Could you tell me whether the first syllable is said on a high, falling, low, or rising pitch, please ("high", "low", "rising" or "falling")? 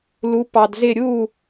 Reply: rising